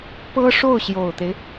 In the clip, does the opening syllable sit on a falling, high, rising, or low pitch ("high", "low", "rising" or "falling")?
high